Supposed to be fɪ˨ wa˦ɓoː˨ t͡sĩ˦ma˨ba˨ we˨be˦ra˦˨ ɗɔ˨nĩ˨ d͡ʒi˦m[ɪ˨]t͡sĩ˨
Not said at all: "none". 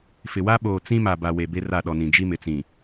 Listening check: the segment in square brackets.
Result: ɪ˨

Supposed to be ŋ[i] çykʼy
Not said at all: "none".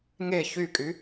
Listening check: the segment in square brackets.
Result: e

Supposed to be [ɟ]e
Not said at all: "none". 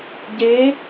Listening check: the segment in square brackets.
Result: ɟ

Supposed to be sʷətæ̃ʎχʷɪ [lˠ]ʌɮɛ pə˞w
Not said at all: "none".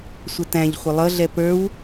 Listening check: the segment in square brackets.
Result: lˠ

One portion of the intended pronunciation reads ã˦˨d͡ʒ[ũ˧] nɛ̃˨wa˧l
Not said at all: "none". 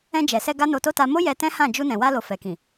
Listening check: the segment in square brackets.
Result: u˧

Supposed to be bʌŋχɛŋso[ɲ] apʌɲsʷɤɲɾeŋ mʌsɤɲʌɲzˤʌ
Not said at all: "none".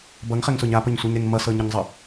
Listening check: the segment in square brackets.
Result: ɲ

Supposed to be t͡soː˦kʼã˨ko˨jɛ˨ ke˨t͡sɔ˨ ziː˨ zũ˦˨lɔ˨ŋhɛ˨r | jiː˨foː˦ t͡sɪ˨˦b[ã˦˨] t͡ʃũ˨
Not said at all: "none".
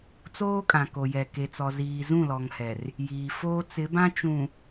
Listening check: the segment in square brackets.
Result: ã˦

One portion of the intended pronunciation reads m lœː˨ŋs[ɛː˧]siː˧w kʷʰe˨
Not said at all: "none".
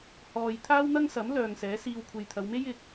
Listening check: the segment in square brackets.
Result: ɛː˨˥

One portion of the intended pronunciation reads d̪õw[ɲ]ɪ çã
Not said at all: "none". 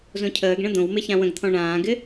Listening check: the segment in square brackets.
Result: m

